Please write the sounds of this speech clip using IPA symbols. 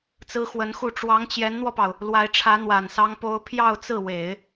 t͡s ɹ̩˥ x w ə˧˥ n x u˥˩ ʈ͡ʂ w ɑ˧˥ ŋ t͡ɕ j ɛ˧˥ n n̪ w ɔ˧ p ɑ˩ ʊ̯ | l w a˧˥ ɪ̯ ʈ͡ʂʰ ä˧˥ n̪ w a˨˩ n s ɑ˥ ŋ p o˥ ʊ̯ pʰ j ɑ˥˧ ʊ̯ t͡s ɹ̩˥˩ w e˨˩˦ ɪ̯

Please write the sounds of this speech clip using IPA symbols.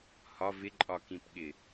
h ɒ v ɪ ǃʼ ɒ k ĩ p ɠ ɪ

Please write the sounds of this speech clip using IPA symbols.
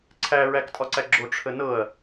ǀʰ æ ɹ æ k tʼ ɒ ǀ æ ɡ͡ǁ o ʈ͡ʂʰ ə n ɤ ɐ̯

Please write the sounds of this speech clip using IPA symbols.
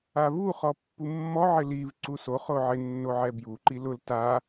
a v u χ ɔ pː u mː ɔ ʕ ɪ l i v ǀ u s o χ o ʕ ɪ nː o ʕ ɛ b j u ǃ i l ʊ l t a

